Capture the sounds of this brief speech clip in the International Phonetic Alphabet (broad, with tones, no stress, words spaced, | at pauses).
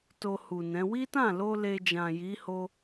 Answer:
to˧hu˨nɛ̃˨˦ wi˦tã˦˨lo˧ le˧d͡ʒã˨ji˨˦ho˧